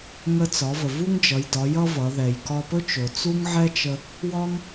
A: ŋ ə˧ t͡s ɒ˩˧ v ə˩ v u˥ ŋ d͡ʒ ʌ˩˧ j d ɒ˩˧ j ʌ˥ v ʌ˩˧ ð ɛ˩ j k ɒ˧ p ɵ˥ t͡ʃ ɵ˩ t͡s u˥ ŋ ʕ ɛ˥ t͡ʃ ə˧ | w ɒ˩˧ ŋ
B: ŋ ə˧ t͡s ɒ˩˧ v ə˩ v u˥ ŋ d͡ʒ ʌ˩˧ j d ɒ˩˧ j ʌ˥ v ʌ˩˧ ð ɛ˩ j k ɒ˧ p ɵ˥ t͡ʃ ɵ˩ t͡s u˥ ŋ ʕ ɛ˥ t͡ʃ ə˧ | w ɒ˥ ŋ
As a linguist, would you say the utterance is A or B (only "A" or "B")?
B